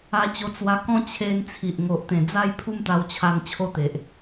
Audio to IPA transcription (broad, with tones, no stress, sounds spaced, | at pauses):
a˧ t͡ɕ o˧ t͡s w a˧ k ɔ̃˥˧ t͡ɕʰ e˧ n t͡sʰ i˨ ʔ ŋ o˨ ʔ t̪ ẽ˨˩ d͡z a˥˧ j pʰ u˥˧ m t̪ a˧ w t͡ɕʰ a˧ n t͡ɕʰ o˥˧ t̪ e˨ ʔ